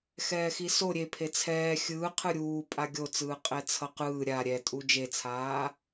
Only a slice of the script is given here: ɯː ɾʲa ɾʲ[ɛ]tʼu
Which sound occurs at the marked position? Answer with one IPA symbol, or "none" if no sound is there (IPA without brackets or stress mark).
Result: ɛ